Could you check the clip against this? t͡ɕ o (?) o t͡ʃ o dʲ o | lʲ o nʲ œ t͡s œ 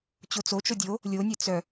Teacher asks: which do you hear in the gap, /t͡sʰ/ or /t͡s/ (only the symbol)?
t͡s